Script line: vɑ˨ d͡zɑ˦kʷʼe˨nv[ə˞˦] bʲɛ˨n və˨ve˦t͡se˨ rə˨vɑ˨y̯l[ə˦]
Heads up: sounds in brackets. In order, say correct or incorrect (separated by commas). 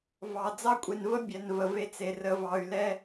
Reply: incorrect, incorrect